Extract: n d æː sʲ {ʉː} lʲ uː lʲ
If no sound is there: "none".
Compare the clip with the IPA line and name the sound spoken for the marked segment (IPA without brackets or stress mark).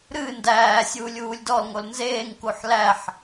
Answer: uː